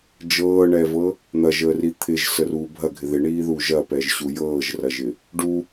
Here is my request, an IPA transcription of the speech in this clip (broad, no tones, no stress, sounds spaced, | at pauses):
d͡ʒ ɤː ɳ ɛ v ɤ | n̪ ɐ ʒ əː r i t̪ʰ ɪ ʒ s ə r uː bʱ ɐ ɡʱ ɪ ð ɪ ɳ iː ð uː ʒ ɐ p ɛ ʒ ɕ u j ɤː ʒ r ɐ ʒ ɪ | ɖ u